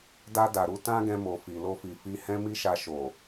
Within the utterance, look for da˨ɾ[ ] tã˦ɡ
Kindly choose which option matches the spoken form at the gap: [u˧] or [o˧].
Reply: u˧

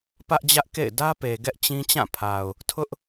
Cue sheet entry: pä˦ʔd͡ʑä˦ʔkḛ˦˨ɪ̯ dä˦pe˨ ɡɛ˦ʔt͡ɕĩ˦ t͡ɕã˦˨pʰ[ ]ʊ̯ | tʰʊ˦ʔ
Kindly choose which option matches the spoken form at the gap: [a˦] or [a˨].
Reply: a˨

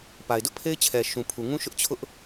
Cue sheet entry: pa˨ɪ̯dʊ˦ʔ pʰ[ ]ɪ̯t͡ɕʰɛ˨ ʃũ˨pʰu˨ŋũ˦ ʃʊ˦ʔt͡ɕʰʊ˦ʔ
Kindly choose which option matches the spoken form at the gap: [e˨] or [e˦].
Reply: e˦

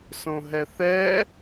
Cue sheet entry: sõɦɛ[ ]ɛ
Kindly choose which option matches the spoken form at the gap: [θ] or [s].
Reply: θ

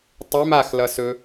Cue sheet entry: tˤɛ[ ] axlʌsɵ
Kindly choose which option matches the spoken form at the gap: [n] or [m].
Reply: m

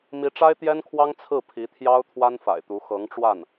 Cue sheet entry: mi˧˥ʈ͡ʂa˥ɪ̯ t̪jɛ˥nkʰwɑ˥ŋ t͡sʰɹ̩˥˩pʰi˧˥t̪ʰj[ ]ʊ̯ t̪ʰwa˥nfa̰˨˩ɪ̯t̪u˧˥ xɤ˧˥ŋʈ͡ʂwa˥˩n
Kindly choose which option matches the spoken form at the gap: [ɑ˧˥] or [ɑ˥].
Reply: ɑ˥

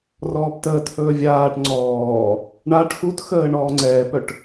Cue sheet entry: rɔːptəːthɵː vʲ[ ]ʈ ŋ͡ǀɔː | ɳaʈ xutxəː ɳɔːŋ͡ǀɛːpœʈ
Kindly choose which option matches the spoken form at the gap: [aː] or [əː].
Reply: aː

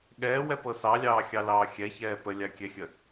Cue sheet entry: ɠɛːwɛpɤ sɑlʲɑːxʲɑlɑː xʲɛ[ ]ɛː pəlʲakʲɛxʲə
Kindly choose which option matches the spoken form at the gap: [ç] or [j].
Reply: ç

